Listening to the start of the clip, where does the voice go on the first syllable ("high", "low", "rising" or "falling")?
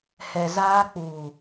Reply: low